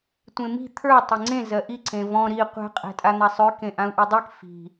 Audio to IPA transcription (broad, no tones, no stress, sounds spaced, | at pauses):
tʷ ẽ m i̤ t̪ʰ ə˞ tˤ e ŋ͡ǀ ẽ z ɜ ʔ i ǀ ẽ v ɔ̃ ɾ i qʷ ɛ̤ qʼ ɛ̤ tʼ a n̪ a sˤ ø k ẽ ʔ ã u̯ ʔ ø dˤ e k f i̤